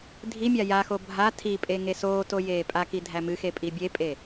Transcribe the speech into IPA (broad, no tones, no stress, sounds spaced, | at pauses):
dʱ i mʲ a j a x o bʱ a tʰ i pʼ e ŋ e s oː t o j eː pʼ a k i dʱ æ m ɨ x e pʼ i bʲ e pʼ e